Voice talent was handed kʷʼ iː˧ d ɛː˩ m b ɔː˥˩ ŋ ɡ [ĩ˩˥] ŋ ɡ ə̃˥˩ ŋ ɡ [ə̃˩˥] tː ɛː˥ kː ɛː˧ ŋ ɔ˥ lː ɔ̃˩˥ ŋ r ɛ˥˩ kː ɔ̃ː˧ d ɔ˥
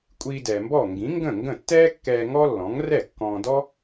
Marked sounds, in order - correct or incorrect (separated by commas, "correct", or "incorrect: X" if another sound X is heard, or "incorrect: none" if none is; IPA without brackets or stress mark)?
correct, incorrect: ə̃˥˩